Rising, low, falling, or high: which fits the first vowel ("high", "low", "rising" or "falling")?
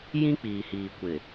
high